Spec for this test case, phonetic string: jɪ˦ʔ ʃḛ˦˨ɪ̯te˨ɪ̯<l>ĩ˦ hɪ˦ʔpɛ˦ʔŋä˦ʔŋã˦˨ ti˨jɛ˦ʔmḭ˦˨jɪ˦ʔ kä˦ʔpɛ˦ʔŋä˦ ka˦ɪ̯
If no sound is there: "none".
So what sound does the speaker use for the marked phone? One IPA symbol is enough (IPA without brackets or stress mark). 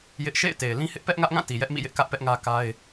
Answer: l